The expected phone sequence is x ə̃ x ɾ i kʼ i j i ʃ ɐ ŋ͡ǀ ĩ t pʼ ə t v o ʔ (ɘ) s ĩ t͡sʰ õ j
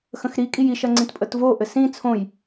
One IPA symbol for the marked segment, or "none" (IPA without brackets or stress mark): ɘ